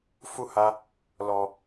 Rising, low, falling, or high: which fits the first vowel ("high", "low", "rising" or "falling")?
high